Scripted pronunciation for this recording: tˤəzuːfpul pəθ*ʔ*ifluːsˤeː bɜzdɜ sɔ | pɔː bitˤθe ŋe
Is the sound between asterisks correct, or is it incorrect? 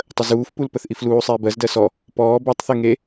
correct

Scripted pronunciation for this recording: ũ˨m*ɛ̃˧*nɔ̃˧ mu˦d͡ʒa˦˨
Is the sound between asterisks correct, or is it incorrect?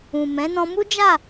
incorrect: ɛ̃˨˦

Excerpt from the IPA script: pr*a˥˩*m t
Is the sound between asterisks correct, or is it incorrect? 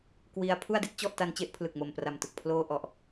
incorrect: a˨˩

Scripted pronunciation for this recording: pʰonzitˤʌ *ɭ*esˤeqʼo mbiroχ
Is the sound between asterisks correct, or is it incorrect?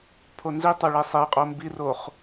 correct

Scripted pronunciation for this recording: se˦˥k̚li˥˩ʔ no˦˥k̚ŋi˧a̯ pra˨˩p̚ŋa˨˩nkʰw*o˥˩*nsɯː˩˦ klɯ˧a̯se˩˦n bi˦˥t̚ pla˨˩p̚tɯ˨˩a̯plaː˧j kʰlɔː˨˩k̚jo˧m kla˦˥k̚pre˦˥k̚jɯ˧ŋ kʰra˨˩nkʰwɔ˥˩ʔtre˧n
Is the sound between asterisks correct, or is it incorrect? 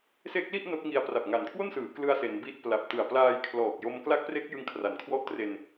correct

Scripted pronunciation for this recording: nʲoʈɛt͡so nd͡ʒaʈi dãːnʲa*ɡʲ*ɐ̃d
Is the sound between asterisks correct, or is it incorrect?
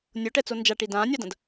incorrect: d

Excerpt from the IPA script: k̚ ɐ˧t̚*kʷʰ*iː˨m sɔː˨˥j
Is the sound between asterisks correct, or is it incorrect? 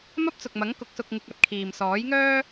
incorrect: kʰ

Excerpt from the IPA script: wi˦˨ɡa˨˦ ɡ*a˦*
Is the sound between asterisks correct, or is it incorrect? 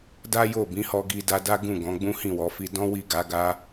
correct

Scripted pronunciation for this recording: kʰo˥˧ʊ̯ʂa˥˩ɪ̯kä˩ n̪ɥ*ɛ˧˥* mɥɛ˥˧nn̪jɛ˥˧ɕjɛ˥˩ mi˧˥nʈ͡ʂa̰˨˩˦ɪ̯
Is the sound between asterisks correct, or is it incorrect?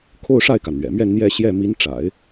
incorrect: ɛ̰˨˩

